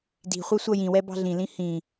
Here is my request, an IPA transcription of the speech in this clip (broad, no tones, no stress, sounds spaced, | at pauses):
d i̤ χʷ ɜ sʷ ʌ j ĩ w ɛ b ɑ̤ ɮ ĩ l ĩ h ĩ